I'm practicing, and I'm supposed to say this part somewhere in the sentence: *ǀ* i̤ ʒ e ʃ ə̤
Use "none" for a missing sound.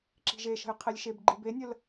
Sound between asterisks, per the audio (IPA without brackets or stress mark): ǁ